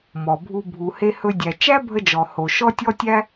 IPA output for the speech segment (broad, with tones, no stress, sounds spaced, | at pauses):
m ɔ˩ bʱ u˧ bʱ u˩ h e˧ h ɵ˧ dʲ æ˩ t͡ʃ æ˥ bʱ ə˧ d͡ʒ ɔ˩ h o˩ ʃ ɔ˥ tʲ ɔ˥ tʲ æ˥